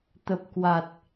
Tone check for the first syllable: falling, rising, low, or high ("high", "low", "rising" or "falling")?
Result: low